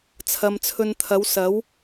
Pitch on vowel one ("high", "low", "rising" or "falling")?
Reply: low